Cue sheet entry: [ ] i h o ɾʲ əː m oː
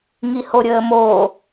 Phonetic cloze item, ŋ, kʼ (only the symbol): ŋ